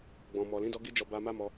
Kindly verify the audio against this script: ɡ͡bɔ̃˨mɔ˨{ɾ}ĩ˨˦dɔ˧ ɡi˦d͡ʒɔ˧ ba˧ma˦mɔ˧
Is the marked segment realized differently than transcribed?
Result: yes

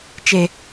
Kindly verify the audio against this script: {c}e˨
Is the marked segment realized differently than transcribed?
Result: yes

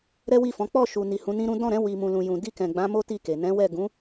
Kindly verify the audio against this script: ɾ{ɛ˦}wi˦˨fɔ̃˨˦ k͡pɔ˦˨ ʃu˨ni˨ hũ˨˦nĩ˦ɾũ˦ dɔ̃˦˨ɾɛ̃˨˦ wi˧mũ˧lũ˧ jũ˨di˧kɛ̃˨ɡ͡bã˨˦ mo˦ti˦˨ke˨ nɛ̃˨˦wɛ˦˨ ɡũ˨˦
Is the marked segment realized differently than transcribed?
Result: no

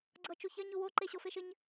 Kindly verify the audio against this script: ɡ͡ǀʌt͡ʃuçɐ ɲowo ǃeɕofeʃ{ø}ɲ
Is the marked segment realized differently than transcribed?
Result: yes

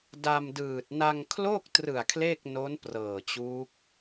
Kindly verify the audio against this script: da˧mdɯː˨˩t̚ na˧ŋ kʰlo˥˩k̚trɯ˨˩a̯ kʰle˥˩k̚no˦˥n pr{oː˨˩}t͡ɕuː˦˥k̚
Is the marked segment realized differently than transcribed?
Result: yes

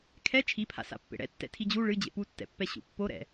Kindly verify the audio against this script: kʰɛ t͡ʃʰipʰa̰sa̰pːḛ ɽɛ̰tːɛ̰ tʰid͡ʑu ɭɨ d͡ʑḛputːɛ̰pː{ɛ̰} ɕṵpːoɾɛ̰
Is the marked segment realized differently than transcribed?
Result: yes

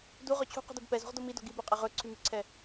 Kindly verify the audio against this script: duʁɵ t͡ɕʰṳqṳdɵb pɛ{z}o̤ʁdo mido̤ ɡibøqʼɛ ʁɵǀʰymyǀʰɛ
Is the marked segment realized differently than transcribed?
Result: no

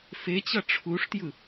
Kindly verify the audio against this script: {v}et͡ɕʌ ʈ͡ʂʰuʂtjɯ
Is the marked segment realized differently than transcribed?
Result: yes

